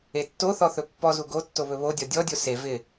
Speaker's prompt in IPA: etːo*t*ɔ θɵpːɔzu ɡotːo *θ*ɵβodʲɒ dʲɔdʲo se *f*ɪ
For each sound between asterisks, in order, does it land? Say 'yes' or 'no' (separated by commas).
no, no, no